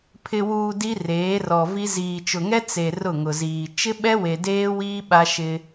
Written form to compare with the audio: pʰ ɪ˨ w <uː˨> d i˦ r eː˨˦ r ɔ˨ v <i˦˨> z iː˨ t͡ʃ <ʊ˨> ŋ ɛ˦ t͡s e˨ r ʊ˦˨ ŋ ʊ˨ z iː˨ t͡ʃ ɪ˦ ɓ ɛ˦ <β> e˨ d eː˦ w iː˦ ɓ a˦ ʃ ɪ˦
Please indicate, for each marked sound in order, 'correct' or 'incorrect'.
correct, incorrect: i˦, correct, incorrect: w

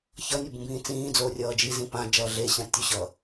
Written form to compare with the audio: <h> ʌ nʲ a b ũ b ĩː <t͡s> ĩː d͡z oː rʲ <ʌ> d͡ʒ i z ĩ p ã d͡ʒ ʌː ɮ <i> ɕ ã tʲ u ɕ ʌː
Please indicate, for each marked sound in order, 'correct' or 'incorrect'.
incorrect: ç, correct, incorrect: ʌː, incorrect: e

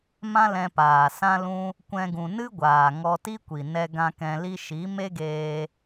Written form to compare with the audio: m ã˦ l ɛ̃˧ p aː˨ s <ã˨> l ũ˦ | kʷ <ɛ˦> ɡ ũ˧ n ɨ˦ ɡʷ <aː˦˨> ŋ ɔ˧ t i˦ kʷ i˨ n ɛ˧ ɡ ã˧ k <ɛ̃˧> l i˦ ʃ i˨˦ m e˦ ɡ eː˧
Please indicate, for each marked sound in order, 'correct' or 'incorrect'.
incorrect: ã˦, incorrect: ɛ̃˦, incorrect: aː˨, correct

